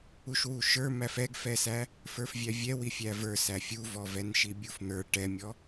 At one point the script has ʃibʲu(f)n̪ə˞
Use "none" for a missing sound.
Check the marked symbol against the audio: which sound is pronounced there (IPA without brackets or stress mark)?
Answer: f